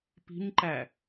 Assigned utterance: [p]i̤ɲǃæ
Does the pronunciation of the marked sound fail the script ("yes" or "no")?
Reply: no